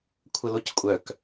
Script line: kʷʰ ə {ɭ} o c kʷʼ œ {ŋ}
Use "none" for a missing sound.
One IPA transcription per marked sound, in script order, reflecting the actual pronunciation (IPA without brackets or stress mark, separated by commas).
l, k